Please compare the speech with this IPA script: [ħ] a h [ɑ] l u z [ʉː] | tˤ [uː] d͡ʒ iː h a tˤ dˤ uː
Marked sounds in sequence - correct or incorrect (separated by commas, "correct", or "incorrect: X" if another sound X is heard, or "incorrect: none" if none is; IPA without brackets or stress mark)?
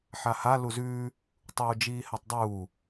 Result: correct, incorrect: a, correct, correct